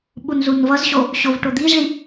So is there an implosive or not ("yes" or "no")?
yes